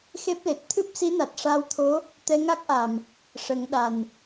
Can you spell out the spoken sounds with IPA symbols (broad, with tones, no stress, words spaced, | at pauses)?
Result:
xe˦˥p̚le˨˩t̚ t̪ʰɨ˦˥p̚si˧˥na˨˩t̚ ʂaː˧wt̪ʰo˧˥ | t̪ɛ˧ŋa˦˥k̚ʔa˨˩m | ʂə˨˩˦ŋ ɗa˨˩n